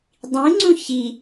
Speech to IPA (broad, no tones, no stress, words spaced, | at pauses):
dˤĩŋ͡ǀũ çi